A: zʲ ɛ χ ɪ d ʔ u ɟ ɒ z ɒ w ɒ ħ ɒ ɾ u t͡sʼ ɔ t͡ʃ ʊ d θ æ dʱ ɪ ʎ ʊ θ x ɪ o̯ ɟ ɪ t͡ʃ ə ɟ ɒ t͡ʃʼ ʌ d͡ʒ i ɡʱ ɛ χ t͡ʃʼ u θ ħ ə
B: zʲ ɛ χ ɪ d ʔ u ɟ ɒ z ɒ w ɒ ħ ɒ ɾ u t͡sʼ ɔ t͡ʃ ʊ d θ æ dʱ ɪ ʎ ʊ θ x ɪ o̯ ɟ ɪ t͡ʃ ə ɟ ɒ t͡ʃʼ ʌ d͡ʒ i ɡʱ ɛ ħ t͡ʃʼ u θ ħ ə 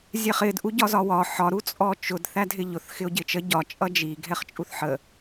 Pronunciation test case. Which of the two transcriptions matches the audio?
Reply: A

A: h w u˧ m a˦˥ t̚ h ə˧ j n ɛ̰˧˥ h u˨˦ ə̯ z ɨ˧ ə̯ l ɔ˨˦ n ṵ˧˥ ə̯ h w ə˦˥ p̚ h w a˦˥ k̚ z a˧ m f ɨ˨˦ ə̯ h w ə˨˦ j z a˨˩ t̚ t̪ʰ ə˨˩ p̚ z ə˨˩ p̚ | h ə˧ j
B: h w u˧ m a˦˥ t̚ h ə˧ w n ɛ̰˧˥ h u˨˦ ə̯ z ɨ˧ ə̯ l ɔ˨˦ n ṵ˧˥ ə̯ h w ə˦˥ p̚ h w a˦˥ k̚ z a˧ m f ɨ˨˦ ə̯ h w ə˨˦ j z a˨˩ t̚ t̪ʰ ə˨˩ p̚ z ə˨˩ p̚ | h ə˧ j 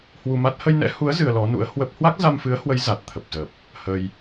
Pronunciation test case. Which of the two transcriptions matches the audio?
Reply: A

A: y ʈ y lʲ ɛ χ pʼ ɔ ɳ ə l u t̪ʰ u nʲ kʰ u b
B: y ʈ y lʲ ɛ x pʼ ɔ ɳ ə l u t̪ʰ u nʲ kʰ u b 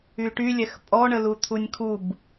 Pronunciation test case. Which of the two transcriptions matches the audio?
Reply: B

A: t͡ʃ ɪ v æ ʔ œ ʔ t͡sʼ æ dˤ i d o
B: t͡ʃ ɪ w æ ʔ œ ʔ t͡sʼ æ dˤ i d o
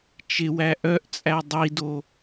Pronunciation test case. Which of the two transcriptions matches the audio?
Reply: B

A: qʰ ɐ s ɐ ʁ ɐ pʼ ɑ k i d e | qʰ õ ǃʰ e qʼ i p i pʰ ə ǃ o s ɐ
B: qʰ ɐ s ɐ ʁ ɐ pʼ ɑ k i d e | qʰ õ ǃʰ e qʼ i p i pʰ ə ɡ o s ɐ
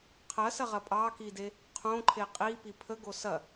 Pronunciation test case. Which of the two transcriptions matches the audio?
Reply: B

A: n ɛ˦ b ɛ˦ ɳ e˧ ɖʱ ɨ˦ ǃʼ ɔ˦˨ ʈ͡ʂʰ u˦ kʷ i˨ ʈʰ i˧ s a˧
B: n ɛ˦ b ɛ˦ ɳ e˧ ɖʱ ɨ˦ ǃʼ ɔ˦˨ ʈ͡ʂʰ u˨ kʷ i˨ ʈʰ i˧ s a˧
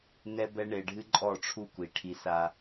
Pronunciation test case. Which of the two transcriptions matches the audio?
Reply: A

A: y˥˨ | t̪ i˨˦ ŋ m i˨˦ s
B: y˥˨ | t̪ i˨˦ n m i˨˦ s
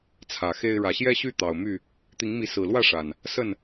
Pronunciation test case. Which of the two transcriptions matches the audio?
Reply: A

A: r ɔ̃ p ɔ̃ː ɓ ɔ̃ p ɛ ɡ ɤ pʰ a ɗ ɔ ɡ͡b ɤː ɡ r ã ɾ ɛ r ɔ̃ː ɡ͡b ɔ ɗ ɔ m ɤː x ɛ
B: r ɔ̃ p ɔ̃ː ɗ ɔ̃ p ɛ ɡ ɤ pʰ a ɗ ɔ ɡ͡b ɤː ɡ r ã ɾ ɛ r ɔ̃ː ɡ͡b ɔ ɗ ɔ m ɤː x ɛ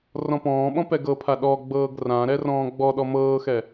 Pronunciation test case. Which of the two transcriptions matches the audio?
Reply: A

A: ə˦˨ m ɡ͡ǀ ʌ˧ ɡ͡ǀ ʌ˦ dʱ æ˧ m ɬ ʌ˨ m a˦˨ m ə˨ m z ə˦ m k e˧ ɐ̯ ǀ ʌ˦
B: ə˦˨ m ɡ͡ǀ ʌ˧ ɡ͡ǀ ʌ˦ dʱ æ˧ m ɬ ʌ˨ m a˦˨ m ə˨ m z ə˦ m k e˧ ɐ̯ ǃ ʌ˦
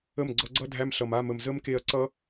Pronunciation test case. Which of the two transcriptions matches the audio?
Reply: A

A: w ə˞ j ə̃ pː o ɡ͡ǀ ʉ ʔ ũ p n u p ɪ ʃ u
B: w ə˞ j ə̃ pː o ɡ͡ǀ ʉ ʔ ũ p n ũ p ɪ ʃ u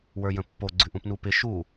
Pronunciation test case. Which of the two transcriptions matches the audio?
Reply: A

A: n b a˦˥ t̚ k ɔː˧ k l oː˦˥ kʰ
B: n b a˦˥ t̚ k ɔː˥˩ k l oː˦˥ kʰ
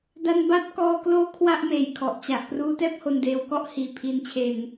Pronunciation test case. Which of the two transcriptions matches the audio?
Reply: A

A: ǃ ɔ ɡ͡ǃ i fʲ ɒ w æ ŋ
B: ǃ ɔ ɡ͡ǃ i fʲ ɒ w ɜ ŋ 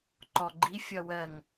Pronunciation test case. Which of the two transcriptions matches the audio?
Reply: B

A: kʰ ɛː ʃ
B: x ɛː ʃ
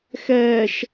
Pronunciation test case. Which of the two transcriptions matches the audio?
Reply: B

